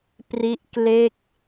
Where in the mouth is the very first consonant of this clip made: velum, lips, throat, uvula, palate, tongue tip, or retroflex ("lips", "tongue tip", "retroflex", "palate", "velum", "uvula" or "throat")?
lips